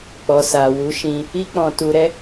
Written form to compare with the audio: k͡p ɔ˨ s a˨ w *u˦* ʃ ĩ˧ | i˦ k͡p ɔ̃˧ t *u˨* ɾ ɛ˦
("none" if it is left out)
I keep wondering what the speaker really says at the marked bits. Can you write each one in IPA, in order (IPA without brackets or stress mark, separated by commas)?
u˨˦, u˧